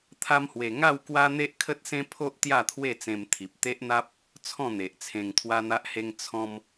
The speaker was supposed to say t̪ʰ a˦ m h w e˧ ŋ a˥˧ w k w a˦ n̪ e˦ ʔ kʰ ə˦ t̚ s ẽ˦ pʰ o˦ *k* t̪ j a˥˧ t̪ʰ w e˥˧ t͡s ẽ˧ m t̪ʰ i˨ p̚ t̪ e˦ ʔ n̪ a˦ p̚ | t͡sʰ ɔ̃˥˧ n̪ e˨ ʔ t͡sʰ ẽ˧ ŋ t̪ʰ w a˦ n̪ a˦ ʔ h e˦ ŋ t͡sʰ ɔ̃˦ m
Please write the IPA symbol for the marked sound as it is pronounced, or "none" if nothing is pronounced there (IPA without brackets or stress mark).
ʔ